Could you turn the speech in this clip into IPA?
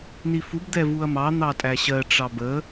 nifub d̪ɛvuɐ̯mɑ n̪ɑtʼæɕɜ ʈ͡ʂɑbə

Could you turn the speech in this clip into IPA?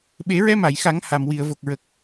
ɓe˨˩˦ɹɛ˧ma˨˩˨jxa˨˩˦ŋ ha˨˩mwi˨˩˨ə̯vo˨˩k̚ɹə˨˩k̚

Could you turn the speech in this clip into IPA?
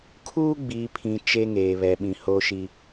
kʰuː˦ ɡ͡biː˨pʰĩ˨ t͡ʃe˦ŋeː˨βɛ˨ ɓĩ˨hoː˦ʃi˦

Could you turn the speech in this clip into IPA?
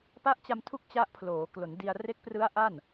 pa˦˥ʔt͡ɕa˧mtʰu˦˥k̚ t͡ɕa˦˥ʔpʰloː˩˦klo˩˦ndi˧a̯ re˦˥k̚prɯ˦˥a̯ ʔa˥˩n

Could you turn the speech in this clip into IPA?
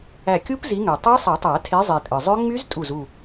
æ˧˩kʲu˦˥p zi˨˦ŋø˩ tˤɑ˦˥sˤi˨˩˦tˤæ˨˩˦ tʰe˨˦zˤi˩ tʼɯ˩zˤø˦˥ ŋ͡my˦˥ztʼu˧˩z u˧˩

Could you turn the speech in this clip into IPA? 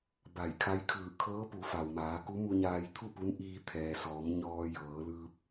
ba˧˩jkʰa˧˥jkʰɯː˧˩ kʰɤː˧˥pu˩˧ fa˩wmaː˩˧ku˧˥ mu˧ɲaː˧jt̪ʰu˥˨pu˧˥n ʔiː˧t̪ʰɛː˩sɔː˩˧m ɲɔː˧jɤː˩˧lɯː˧p̚

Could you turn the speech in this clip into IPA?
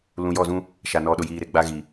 lũ˨jɔ˦˨zũ˦ | ʃa˨ nɔ˨ɗʊ˨jiː˨ɾe˨ ɡ͡ba˦ ɣi˨

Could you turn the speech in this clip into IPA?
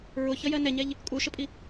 ɹʊçʌjɜ nɛɲɛʎ | kʼuʃəpʼi

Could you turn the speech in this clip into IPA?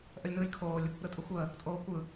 ʔəlʲnɯːlʲkʰoːlʲ | ɾɯtʼɯxʷəː | tʼoːkʷɯ

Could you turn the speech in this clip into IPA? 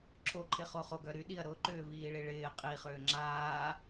ǁʰoǃʰɪχo χoɡœ ɾyɗiɐ̯ ɾʊǃʏːviːɭi ɭɪː qʼiχʏː ŋ͡ǁaː

